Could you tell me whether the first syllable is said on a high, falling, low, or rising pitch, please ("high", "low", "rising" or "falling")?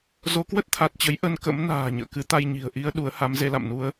rising